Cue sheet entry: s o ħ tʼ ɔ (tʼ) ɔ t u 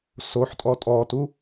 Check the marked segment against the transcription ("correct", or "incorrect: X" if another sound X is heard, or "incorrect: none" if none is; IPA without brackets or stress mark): correct